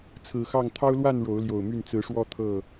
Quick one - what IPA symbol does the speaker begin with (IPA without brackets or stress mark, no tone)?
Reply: t͡sʰ